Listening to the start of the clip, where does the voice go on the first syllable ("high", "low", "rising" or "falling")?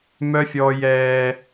high